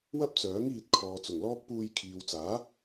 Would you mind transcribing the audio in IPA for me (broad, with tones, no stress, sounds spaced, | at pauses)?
w ɐ˥ p̚ t͡s œː˨˥ ŋ iː˧ t̚ kʰ ɔː˨ t͡s ʊ˨˩ ŋ l ɔː˥ k̚ p uː˧ j kʰ iː˨ w t͡s aː˨˥